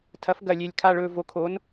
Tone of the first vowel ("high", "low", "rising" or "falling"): rising